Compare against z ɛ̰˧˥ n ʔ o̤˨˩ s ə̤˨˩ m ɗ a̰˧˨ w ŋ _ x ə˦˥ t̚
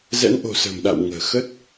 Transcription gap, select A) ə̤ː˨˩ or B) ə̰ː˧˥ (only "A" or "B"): A